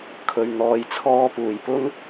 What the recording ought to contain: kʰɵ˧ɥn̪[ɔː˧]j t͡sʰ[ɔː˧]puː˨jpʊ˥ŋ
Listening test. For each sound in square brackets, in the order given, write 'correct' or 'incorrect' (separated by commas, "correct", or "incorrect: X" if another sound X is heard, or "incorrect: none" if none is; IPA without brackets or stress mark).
correct, correct